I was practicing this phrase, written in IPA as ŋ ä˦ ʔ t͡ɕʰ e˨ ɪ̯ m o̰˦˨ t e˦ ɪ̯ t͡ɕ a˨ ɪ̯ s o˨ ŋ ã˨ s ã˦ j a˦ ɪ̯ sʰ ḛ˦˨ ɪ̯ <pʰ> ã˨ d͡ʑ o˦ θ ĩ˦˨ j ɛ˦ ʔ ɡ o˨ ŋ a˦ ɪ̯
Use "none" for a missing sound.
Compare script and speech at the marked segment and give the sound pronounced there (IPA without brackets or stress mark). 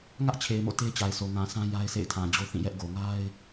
tʰ